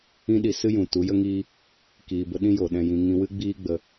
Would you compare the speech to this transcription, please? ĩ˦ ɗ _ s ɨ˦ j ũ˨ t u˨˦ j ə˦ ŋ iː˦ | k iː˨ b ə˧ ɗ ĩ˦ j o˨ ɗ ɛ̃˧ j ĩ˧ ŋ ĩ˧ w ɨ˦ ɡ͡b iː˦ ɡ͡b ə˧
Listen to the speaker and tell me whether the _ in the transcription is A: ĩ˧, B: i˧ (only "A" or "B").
B